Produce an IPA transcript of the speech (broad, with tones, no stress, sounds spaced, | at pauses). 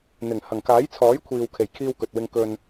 n̪ ɪ˨˩ ŋ h ɐ˨˩ ŋ k aː˨˥ j t͡sʰ ɔː˨˥ j kʷʰ iː˨ w kʰ e˨˩ j kʰ iː˧ w k ɵ˨ t̚ w ɪ˧ ŋ k ɵ˧ n